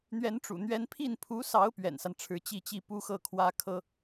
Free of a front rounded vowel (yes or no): yes